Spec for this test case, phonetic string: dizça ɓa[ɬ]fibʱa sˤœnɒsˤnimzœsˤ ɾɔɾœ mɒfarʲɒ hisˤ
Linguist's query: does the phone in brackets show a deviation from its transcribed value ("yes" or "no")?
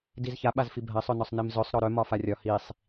yes